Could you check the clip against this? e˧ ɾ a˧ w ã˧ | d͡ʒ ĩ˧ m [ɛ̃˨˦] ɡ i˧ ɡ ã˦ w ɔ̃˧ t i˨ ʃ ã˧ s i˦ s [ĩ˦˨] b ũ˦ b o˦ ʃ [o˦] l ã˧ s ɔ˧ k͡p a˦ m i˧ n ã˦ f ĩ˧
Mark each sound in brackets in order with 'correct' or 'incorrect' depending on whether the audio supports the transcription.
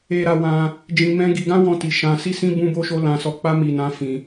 incorrect, incorrect, correct

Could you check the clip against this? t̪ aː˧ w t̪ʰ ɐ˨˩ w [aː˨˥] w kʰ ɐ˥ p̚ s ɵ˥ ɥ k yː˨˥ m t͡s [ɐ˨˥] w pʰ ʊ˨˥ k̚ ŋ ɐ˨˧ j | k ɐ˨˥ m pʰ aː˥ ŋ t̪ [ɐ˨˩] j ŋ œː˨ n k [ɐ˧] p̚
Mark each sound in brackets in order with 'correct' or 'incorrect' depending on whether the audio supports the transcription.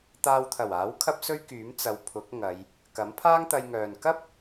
correct, incorrect, incorrect, incorrect

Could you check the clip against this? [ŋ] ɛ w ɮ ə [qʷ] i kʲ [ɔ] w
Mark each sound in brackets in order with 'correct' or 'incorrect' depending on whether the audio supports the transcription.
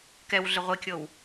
incorrect, incorrect, incorrect

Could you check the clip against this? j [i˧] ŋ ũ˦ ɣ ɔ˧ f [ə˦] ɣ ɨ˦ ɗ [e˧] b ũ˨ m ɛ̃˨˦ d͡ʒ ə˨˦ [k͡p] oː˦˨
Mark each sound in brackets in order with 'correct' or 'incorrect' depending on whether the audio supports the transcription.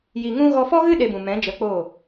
correct, incorrect, correct, correct

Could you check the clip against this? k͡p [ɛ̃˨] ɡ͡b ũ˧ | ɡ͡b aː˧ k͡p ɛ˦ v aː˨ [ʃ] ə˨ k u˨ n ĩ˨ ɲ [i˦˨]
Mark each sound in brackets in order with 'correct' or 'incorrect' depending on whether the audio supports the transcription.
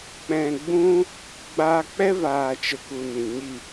correct, incorrect, correct

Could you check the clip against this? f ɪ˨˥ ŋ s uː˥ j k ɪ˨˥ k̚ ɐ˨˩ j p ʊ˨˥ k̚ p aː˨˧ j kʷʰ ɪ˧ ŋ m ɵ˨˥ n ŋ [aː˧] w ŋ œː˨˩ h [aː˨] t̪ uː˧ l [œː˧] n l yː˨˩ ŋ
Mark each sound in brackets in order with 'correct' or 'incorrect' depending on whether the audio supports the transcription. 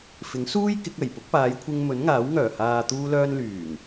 incorrect, correct, correct

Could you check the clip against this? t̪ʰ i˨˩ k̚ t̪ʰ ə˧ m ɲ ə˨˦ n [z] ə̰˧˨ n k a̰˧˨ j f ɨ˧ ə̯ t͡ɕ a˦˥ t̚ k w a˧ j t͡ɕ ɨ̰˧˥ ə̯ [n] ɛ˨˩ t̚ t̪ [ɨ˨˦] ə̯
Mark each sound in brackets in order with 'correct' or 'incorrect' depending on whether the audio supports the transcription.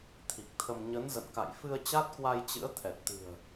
correct, incorrect, incorrect

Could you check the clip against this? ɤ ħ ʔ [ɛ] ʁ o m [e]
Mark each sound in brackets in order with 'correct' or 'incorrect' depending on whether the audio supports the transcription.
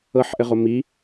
incorrect, incorrect

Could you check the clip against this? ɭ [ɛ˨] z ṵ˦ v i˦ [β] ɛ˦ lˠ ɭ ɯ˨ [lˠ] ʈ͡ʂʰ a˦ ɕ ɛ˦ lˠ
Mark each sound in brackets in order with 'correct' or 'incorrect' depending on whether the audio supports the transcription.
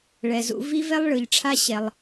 correct, incorrect, incorrect

